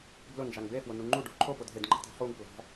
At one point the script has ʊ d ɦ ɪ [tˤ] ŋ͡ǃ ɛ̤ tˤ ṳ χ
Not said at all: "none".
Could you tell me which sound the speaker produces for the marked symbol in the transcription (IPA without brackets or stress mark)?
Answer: d